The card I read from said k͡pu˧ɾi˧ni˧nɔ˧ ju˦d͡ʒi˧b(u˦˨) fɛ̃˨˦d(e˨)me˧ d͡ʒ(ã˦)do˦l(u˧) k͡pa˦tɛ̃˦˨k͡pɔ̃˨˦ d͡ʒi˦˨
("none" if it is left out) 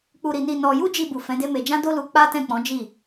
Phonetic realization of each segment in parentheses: u˨, e˦, ã˦, u˧

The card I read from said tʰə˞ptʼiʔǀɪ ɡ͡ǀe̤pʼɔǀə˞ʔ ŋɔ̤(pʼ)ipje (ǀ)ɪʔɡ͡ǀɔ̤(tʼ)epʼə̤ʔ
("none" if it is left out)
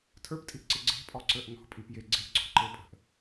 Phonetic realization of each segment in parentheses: pʼ, ɡ͡ǀ, ǃ

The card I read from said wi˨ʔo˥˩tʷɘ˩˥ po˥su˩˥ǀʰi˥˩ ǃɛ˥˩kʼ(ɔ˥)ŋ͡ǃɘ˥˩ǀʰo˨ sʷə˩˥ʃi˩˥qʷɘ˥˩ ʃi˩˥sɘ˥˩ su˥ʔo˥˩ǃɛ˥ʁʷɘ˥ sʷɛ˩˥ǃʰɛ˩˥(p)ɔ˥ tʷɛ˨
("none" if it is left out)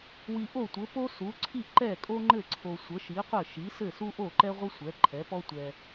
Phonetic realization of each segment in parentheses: o˥, p

